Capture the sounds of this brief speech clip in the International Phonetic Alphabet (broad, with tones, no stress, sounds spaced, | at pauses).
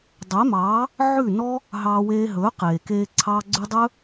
dˤ e˨˦ m ɑː˨˦ | ʕ ʉ˦˨ n ɔ˦ | ɦ ɑː˧ w eː˧ ɦ ɵː˨˦ q eː˨ k eː˧ ǀʰ ɑː˧ ɡ͡ǀ ʉ˧ dˤ ɵː˦